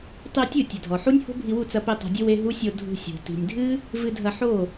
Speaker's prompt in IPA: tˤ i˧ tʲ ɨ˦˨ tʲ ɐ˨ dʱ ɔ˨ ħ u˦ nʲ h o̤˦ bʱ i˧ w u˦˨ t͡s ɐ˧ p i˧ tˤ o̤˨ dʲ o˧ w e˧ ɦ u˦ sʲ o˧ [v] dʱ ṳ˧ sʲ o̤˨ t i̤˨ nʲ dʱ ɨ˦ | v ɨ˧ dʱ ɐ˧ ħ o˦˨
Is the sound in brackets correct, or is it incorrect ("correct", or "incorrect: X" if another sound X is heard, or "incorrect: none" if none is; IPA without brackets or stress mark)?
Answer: incorrect: none